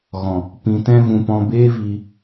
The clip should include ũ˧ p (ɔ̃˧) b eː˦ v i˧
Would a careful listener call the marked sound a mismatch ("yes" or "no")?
no